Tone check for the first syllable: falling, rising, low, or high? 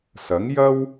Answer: rising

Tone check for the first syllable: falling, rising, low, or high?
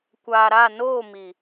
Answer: low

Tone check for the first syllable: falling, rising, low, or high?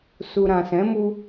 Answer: low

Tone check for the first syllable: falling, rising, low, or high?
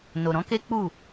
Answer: low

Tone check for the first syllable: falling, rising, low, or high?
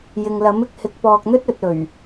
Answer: low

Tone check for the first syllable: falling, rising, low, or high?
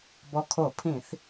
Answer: low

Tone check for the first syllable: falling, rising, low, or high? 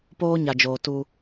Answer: high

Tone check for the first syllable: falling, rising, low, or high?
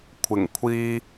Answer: low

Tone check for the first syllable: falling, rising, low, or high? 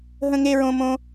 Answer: high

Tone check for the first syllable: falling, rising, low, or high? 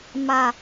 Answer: low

